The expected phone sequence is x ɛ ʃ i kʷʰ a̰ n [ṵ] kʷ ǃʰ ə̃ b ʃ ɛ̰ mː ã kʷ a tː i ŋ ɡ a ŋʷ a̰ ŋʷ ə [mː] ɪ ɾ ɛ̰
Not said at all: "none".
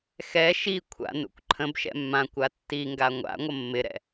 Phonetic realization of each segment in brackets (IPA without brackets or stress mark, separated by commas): ṵ, mː